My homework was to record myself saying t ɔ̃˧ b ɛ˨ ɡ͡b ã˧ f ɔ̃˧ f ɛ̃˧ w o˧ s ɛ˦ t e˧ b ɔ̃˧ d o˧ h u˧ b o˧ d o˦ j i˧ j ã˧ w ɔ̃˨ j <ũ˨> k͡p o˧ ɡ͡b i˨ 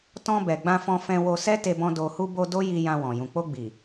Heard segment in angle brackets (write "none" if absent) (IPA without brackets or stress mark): ũ˨